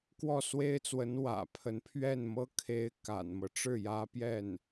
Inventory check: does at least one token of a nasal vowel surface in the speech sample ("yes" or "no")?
no